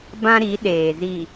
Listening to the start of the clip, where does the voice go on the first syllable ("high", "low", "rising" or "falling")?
high